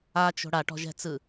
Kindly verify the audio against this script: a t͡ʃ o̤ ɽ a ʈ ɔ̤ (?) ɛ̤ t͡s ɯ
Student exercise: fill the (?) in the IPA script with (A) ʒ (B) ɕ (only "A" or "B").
A